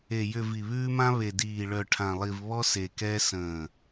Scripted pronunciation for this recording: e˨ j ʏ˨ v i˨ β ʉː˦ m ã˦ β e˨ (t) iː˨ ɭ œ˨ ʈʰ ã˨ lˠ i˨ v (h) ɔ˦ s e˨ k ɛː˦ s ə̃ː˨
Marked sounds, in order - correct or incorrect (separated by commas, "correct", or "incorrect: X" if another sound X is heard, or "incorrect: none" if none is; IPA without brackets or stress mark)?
incorrect: d, incorrect: β